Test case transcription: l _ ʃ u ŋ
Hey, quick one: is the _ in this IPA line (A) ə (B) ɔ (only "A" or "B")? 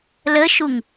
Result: A